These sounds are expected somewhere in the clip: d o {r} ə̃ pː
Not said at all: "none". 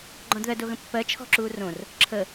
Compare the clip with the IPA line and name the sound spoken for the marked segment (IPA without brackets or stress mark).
ɣ